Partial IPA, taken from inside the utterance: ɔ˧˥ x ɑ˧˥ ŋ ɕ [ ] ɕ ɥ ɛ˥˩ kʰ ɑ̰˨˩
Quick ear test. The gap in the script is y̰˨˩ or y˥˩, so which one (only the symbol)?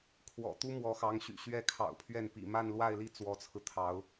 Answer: y̰˨˩